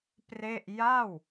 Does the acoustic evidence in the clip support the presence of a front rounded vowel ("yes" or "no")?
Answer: no